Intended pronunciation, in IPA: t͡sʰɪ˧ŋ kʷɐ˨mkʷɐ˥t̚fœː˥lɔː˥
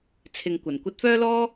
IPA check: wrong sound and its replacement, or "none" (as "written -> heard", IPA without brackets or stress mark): m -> n